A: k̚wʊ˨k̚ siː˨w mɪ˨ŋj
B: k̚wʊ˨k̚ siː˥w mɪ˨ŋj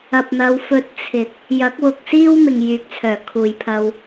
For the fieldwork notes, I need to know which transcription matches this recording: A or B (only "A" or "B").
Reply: B